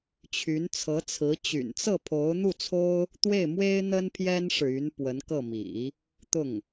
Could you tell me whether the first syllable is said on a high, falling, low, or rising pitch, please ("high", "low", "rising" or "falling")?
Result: rising